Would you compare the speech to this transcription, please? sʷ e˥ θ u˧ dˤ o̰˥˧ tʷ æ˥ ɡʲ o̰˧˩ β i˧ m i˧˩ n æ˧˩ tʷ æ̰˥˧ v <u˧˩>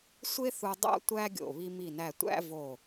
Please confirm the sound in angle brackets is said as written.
no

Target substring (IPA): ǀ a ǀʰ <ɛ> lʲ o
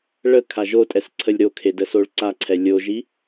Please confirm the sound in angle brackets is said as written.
yes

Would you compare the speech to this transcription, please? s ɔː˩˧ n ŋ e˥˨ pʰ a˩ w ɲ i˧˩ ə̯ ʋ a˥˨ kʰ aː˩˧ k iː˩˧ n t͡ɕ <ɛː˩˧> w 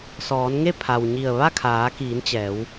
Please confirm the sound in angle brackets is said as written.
yes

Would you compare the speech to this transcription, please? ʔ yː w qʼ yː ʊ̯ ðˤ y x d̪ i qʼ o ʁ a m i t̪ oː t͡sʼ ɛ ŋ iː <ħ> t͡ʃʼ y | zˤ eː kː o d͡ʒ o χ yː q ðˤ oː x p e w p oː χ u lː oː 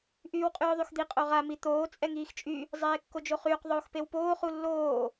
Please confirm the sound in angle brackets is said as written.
no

